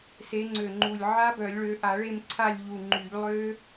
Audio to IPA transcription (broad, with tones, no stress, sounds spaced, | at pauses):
s e˨˦ ŋ͡ǀ ø˨˩ ŋ͡ǃ u˨˩ lʲ ʕ a˦˥ b œ˨˩˦ lʲ ɭ ø˨˦ ʔ a˨˩˦ ɭ e˦˨ m ǀʰ a˦˨ lʲ ʎ u˨˩ ŋ͡ǃ y˨˩˦ ʎ lˠ ø˦˥